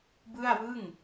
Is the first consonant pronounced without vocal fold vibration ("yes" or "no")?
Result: no